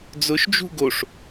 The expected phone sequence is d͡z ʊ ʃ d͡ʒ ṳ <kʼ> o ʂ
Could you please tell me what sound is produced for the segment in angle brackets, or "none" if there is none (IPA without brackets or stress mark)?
ɡ